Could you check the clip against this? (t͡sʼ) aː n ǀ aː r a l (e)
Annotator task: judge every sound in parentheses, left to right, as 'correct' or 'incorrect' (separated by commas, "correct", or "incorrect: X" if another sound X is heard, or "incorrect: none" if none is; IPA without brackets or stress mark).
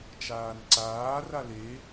incorrect: t͡ʃ, correct